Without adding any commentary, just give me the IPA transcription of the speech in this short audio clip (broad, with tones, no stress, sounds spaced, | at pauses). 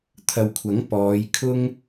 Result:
t̪ʰ ɐ˨ w kʷʰ ɐ˨˥ ŋ p ɔː˨˧ j kʰ ʊ˥ ŋ